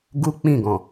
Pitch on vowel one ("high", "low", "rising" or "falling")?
high